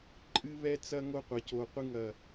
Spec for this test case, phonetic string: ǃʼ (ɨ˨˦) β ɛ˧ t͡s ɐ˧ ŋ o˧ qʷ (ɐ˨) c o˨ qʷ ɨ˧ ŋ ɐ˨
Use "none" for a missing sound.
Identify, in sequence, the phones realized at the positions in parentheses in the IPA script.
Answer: ɨ˧, ɐ˨

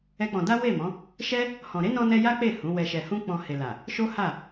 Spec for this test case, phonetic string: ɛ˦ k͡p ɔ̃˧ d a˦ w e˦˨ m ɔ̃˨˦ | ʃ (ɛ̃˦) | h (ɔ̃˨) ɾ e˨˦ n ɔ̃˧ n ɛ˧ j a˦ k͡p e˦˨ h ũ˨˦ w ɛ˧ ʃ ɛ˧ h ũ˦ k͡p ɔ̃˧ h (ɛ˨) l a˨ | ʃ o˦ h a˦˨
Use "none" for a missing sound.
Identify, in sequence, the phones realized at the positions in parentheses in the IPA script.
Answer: ɛ˦, ɔ̃˨, e˨

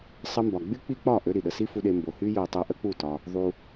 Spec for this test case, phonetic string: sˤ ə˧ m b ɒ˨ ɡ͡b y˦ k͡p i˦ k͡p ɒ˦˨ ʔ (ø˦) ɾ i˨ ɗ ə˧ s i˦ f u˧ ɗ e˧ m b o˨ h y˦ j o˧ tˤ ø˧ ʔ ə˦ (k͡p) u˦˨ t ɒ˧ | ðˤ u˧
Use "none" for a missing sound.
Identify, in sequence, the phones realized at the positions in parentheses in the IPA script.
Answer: ø˦, k͡p

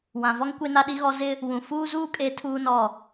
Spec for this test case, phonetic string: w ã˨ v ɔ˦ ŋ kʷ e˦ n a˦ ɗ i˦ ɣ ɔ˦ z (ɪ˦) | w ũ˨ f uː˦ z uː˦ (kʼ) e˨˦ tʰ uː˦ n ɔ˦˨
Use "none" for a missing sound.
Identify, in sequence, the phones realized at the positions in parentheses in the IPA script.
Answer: ɪ˦, kʼ

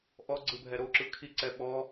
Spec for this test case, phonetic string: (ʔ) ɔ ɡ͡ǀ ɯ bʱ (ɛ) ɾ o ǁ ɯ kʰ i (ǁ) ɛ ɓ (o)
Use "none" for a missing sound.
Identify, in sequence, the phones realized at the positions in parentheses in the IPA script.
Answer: ʔ, ɛ, ǀ, ɔ

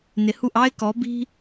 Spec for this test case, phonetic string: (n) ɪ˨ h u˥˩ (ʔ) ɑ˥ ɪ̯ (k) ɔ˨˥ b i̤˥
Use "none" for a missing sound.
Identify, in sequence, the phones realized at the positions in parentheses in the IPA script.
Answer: n, ʔ, k

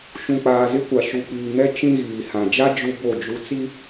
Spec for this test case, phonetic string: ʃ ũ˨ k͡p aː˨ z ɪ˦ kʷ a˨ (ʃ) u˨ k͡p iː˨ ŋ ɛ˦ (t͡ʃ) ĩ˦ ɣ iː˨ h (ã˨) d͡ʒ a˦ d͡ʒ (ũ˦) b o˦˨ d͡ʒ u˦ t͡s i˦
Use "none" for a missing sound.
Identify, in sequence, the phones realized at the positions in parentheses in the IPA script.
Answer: ʃ, t͡ʃ, ã˨, u˦

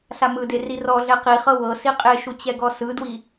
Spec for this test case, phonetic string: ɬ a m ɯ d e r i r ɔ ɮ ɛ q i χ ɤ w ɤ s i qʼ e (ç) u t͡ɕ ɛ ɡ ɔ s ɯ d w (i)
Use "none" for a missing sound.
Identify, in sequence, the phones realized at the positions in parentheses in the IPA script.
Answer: ʃ, i

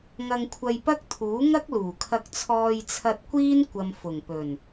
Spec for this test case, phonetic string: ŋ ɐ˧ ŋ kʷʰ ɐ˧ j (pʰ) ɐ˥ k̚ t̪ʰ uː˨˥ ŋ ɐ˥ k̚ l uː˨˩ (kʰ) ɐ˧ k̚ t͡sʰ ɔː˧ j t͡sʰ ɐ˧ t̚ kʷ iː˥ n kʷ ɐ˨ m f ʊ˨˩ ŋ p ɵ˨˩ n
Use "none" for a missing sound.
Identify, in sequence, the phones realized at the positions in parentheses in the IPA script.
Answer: p, kʰ

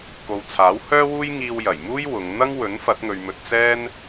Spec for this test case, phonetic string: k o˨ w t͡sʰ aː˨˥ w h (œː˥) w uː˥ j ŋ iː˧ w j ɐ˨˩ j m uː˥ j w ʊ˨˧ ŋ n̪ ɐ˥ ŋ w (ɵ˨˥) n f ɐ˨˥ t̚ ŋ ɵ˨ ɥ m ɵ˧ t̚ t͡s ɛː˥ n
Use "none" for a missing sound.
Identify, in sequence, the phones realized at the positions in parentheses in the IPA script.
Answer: œː˥, ɵ˨˥

